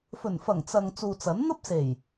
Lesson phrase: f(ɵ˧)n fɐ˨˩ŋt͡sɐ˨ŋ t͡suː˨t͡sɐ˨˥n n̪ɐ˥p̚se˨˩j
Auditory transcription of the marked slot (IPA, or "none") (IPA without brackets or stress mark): ɵ˨˩